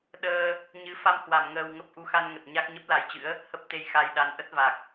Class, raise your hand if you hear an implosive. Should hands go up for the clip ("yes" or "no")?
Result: yes